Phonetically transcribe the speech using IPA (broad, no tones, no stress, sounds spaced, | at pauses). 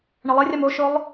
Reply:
ɳ ɐ lˠ e rʲ a m o ʃ ʊ lˠ